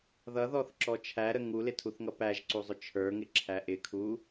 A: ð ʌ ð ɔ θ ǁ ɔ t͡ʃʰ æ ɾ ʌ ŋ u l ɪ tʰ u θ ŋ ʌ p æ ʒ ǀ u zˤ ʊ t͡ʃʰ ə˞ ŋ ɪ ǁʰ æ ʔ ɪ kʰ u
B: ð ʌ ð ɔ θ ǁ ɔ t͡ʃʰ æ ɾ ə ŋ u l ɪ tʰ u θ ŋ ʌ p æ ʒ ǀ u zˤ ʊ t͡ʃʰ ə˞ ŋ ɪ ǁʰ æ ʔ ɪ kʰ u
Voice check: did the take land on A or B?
B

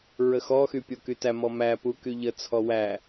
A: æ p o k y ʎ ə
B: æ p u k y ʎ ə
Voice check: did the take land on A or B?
B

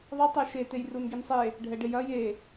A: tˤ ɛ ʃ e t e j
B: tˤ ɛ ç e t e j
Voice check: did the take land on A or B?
A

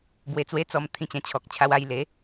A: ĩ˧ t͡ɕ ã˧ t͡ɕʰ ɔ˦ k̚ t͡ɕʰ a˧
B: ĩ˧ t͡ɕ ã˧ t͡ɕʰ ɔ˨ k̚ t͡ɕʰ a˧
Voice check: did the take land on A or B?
B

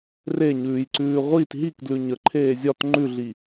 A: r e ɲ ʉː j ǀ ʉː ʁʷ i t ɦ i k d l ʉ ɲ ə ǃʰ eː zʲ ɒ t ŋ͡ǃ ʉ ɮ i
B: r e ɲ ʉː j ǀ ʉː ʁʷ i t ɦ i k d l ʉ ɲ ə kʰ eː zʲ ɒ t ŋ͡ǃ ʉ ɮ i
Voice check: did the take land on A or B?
A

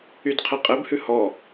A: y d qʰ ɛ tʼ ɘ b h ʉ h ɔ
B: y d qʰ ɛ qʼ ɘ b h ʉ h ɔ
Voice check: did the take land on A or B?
B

